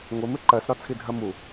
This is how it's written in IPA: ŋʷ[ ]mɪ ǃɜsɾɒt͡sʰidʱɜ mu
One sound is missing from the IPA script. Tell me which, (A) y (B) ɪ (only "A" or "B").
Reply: B